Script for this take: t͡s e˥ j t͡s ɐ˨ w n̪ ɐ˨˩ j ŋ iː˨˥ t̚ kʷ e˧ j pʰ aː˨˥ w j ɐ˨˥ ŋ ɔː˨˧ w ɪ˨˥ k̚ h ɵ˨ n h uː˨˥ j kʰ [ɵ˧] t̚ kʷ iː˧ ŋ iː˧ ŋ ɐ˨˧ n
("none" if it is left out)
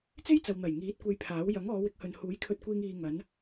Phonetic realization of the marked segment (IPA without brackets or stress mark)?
ɵ˧